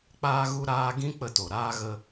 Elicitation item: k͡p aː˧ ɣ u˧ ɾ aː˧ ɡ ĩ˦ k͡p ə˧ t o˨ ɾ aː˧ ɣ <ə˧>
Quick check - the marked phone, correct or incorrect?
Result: correct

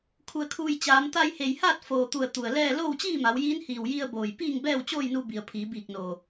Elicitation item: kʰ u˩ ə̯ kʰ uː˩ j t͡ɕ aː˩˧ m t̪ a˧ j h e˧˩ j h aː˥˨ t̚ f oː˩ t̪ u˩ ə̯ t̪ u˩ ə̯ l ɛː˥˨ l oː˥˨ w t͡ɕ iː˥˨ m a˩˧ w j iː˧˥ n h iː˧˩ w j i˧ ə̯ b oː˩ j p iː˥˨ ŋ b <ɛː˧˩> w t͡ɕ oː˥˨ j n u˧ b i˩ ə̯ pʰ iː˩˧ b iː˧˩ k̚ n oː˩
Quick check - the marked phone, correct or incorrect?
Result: incorrect: ɛː˥˨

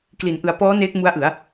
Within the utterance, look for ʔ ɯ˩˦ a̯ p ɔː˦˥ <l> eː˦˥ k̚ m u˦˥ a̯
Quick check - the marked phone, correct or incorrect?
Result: incorrect: n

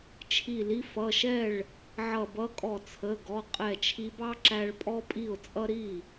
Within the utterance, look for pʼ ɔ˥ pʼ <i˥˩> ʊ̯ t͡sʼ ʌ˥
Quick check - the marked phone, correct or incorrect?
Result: correct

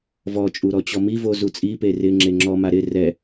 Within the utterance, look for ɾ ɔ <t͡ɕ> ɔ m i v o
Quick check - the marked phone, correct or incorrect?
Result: correct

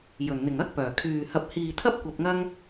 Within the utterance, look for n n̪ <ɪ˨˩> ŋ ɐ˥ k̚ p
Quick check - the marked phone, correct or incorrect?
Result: correct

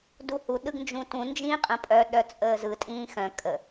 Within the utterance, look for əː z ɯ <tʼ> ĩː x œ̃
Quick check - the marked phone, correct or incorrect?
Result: correct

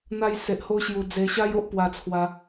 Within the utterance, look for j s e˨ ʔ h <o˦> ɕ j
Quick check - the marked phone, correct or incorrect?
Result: correct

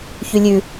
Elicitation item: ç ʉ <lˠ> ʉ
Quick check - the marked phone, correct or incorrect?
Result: incorrect: lʲ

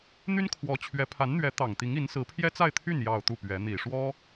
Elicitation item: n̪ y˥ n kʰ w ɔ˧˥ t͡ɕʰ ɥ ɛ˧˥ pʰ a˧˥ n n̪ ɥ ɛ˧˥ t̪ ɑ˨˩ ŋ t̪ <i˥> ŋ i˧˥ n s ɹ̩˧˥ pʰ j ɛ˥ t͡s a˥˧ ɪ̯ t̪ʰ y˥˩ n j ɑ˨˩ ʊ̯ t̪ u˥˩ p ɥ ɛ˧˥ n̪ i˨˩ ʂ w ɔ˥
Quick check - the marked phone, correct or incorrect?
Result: incorrect: i˧˥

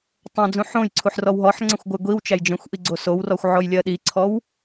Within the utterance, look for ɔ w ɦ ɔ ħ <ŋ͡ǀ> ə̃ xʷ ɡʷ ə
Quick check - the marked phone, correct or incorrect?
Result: correct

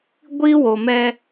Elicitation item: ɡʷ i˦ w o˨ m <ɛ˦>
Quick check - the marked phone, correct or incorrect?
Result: correct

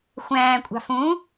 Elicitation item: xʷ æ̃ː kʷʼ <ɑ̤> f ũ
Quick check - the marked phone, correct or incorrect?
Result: correct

